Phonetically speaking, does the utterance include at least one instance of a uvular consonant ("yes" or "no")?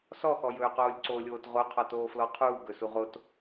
yes